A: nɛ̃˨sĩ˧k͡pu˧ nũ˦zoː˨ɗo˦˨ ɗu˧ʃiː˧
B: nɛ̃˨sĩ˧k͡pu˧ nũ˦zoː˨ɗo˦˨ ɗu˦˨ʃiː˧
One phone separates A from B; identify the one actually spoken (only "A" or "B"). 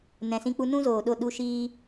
A